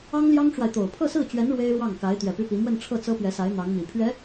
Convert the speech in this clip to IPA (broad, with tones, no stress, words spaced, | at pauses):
ɑ˥ŋljɑ˥ŋʈ͡ʂwa˨ɪ̯t̪o˨˩ʊ̯ pʰɤ˥˧sɹ̩˥˩t͡ɕɥɛ˧˥n ɻwe˥ɪ̯ɻwɑ˥˩ŋka˧˥ɪ̯ t̪ɥɛ˨˩py˥pi˧˥ mwə˥˧nʈ͡ʂʰɤ˥˩ t͡sɤ˥pɥɛ˧˥sa˧˥ɪ̯ n̪ɑ˧˥ŋmi˨˩ pʰɥɛ˧˥